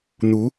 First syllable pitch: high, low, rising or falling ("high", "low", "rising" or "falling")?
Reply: rising